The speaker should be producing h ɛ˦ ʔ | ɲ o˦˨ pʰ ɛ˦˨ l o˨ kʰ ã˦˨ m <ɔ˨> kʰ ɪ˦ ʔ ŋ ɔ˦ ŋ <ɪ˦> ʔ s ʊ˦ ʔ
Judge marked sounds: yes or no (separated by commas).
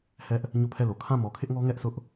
yes, no